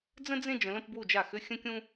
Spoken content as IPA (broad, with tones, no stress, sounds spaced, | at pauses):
d͡z ə̃˥ d͡z ẽ˥˧ d͡ʒ ə̃˨˥ l ə̃˥˧ p b w u˥˩ d͡ʒ a˥˩ x ʏ˥ xʲ ə̃˥ kʲ ũ˥